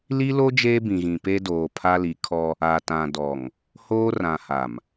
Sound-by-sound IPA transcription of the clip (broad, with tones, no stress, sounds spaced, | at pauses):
l i˦ l o˦ d͡ʒ eː˦ b ĩ˨ ɣ ĩ˨ p e˦ d oː˨ pʰ a˦ l i˨˦ kʰ ɔ˦ | a˨ t ã˨ d ɔ˨ ŋ | h oː˦ r ã˨ h a˨ m